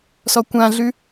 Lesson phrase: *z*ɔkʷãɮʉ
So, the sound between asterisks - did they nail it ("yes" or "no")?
no